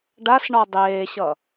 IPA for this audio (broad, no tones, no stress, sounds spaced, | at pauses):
ɖ a s ɳ ɔ dˤ eː ɕ ʌ